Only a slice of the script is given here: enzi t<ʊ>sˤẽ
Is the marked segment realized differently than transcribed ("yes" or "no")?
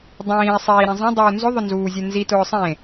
yes